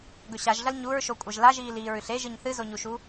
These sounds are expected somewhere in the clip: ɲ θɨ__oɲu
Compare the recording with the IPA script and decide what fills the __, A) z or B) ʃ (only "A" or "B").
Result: A